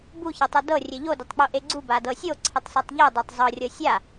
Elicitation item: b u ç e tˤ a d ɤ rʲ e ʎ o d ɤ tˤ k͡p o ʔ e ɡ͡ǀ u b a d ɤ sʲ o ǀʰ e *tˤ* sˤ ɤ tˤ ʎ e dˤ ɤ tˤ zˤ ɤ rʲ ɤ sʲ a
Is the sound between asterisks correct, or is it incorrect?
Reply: correct